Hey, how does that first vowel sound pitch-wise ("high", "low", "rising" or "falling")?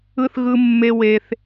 high